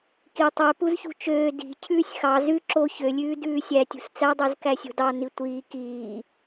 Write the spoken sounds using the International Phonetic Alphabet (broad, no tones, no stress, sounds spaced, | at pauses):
k i tˤ ø p u z ç ṳ t͡ʃ øː d i̤ cʰ ʉː sʲ x ɑ z ʉ ǁ o ç ø lʲ ʉː d ʉː sʲ æ tʲ ṳ s t͡s æ dˤ ʉ z k æ sʲ o̤ d ɑ n i tʷ iː k iː